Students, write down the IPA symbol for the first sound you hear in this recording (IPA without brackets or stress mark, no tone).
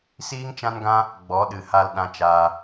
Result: s